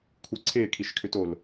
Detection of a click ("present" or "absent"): present